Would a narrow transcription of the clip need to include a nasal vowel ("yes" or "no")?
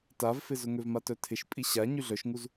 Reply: no